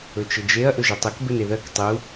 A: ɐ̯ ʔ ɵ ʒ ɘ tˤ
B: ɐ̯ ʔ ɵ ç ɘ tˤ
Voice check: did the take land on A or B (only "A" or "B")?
A